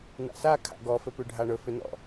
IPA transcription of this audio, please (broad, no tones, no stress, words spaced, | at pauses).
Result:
n̪a̰sa kʰa̰ɡɔ fɘpʉɖʱaɳɵ fʏnɔ̰